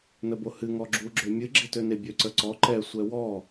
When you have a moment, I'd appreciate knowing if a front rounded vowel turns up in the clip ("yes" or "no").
yes